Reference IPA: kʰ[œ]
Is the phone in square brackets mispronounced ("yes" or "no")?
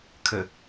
yes